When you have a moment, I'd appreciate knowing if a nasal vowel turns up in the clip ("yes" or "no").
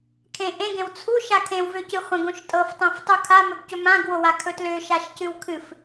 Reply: yes